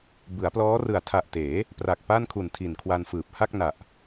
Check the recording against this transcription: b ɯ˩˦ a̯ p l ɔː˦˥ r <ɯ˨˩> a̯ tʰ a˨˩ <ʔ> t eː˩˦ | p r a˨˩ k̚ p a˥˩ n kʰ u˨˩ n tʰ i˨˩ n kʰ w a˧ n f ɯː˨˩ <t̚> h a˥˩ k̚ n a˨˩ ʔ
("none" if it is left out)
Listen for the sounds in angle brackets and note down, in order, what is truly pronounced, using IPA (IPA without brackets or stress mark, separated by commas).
ɯ˨˩, ʔ, p̚